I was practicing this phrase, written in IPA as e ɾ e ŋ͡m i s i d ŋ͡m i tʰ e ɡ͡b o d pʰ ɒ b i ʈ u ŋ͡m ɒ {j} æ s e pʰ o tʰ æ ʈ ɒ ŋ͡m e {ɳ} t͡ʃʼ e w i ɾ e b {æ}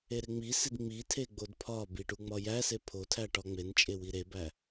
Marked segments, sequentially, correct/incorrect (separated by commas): correct, incorrect, correct